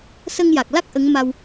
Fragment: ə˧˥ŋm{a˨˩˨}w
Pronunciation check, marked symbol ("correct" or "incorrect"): incorrect